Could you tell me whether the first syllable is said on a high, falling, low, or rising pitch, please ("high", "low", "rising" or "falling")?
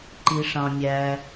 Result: high